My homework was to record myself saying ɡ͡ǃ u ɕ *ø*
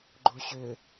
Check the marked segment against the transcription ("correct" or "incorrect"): correct